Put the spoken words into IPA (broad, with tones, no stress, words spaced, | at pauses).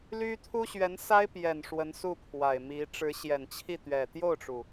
ly˥ t̪ʰu˥ɕɥɛ˧˥nsa˥ɪ̯pjɛ˨˩n ʂwə˧˥nsu˥˩pʰwa˨˩ɪ̯ mi˧˥ ʈ͡ʂɻ̩˧˥ɕjɛ˨˩nt͡ɕʰi˥˩t̪ɥɛ˨˩ t̪jo˥˩ʊ̯ʈ͡ʂu˩